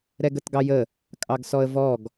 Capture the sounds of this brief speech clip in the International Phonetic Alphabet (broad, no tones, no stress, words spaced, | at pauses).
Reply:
ɾɛɡətɡɑjə | kʼɑɡsɔə̯vɔɡ